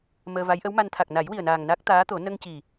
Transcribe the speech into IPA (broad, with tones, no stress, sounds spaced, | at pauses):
m əː˧ v a˧˥ j ʔ ə˧˥ w m a˧ n t̪ʰ a˨˩ k̚ n a˨˩˦ j w i˨˩ ə̯ n aː˨˩ ŋ n a˦˥ k̚ t̪ aː˧˥ t̪ o˨˩˦ n ə˧ ŋ c i˨˩